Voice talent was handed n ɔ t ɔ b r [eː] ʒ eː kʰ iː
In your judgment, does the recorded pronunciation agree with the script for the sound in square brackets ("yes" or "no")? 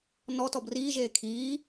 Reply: no